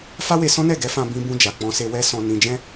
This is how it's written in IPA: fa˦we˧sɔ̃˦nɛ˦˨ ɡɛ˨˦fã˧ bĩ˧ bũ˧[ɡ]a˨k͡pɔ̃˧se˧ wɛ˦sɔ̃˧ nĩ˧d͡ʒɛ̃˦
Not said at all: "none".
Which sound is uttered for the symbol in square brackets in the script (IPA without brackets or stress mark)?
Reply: d͡ʒ